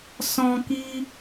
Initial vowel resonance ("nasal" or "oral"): nasal